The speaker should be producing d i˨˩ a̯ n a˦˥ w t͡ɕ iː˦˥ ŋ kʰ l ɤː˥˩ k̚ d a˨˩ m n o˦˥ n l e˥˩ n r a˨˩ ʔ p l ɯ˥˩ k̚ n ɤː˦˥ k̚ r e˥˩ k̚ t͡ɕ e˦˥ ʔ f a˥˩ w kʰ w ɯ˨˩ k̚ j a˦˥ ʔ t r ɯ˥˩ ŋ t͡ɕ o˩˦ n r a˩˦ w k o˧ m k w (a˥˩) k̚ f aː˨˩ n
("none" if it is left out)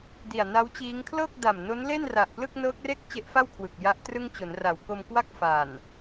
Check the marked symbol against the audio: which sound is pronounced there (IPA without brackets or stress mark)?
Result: a˥˩